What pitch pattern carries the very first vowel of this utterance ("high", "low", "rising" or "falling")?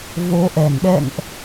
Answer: rising